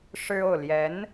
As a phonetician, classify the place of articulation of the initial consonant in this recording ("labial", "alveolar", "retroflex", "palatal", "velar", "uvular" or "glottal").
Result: retroflex